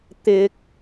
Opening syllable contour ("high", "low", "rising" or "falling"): high